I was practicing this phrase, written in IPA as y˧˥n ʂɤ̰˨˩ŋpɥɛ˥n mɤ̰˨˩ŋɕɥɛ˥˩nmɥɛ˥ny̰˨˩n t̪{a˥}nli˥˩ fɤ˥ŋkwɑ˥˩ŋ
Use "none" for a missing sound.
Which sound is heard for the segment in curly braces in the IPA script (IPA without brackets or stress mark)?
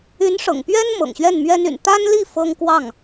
a˥